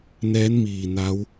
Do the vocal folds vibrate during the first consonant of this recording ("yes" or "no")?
yes